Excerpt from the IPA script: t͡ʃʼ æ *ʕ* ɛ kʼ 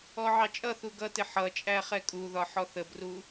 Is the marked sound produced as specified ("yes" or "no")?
no